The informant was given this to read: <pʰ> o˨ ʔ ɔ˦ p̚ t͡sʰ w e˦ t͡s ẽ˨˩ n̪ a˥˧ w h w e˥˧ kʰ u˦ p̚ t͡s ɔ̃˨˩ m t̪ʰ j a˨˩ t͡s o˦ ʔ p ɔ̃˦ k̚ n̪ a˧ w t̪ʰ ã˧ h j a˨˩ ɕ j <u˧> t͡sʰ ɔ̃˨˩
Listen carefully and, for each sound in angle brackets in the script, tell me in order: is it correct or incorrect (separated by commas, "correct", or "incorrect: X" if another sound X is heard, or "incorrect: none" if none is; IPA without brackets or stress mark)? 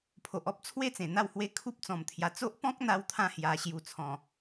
correct, correct